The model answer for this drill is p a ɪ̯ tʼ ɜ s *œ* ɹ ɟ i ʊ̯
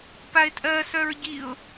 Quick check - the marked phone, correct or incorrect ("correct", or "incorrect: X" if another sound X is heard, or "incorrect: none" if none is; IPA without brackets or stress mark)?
correct